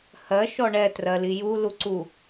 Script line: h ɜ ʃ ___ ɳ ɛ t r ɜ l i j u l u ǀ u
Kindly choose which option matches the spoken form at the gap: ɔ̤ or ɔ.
ɔ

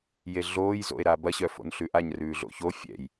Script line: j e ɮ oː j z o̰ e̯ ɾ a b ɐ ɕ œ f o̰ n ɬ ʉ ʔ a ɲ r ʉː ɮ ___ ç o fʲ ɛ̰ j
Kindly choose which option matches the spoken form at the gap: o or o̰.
o̰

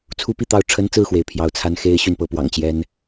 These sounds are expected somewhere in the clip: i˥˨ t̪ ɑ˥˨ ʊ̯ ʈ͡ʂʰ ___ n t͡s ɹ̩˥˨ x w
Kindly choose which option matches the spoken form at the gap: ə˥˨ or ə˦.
ə˦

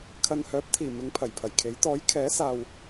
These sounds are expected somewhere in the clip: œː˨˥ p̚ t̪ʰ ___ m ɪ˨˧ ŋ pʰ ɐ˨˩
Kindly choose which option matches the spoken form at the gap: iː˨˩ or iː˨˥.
iː˨˩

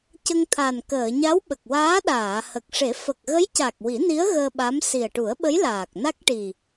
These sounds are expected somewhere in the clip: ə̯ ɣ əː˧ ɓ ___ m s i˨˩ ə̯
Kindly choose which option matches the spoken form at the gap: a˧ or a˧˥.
a˧˥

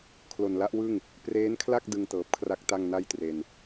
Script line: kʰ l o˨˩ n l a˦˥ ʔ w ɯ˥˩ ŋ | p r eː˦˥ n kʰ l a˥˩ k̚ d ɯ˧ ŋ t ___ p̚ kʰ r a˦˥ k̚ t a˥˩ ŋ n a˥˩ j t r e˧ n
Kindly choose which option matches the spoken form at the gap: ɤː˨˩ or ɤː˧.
ɤː˨˩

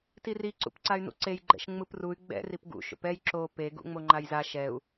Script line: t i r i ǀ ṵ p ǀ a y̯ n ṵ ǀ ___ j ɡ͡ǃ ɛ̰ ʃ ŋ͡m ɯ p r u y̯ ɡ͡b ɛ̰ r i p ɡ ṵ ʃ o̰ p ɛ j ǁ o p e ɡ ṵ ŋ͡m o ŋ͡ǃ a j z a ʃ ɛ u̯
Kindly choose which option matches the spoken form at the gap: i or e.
e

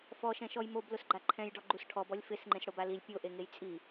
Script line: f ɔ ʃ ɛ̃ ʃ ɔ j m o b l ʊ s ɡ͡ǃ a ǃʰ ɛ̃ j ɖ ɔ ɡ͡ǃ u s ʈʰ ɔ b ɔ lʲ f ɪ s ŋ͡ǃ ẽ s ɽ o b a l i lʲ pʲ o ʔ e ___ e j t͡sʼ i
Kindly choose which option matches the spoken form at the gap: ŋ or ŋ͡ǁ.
ŋ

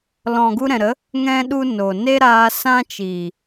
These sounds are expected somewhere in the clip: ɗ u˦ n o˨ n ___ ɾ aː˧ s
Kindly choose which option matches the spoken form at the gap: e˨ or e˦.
e˦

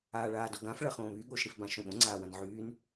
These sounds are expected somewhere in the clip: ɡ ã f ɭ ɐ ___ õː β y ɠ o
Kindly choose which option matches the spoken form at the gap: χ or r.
χ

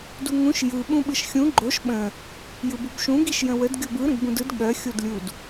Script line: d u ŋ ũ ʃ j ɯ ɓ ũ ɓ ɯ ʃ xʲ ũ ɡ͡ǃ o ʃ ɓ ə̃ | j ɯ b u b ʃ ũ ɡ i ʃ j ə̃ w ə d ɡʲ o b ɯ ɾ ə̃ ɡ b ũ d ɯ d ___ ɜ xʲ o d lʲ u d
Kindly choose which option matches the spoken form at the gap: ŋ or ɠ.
ɠ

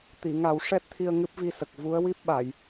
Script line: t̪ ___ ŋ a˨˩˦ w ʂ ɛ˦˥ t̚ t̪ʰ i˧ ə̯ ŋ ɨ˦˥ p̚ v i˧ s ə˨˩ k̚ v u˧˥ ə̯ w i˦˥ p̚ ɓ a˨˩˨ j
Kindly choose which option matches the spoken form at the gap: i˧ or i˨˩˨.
i˨˩˨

